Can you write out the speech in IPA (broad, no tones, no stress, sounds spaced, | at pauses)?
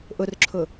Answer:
ʔ ʊ r ǁʰ ʊ